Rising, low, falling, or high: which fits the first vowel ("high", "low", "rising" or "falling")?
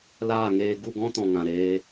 falling